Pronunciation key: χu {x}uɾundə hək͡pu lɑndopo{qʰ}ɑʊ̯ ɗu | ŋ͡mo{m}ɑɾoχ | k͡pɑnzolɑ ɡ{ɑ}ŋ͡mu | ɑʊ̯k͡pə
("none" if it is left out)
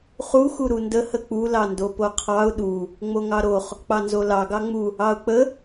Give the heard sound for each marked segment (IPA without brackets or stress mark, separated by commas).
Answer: x, qʰ, ŋ, ɑ